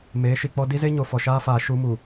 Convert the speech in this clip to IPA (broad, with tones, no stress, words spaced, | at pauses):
meː˨˦ʃi˨k͡pɔ˦ di˦ze˦ ɲo˨fɔ˨ʃaː˦faː˨ ʃu˦mu˨